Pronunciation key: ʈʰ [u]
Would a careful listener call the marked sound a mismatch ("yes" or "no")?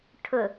yes